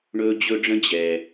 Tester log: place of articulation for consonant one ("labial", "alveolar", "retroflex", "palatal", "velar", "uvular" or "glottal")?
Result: retroflex